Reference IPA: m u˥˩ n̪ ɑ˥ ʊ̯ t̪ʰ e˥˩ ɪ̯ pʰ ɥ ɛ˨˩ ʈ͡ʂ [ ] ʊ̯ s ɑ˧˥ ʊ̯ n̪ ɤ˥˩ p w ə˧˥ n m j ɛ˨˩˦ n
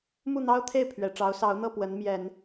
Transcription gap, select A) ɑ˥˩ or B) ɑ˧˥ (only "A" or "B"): B